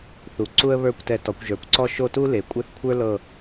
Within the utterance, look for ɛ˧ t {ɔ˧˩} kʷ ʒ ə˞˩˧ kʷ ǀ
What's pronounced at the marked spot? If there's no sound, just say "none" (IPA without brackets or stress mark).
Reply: ɔ˩˧